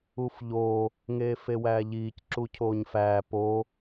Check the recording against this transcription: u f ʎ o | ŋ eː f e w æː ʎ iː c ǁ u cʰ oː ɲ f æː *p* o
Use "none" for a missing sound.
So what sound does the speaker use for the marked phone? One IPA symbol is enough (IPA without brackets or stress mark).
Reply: p